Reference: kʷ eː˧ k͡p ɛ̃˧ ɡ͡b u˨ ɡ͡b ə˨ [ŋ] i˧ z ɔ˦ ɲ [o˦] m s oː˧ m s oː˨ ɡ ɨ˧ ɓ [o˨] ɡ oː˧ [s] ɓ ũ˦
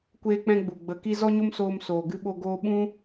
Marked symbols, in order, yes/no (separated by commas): no, yes, no, no